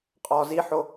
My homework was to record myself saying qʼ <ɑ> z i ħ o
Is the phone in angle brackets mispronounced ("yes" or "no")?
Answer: yes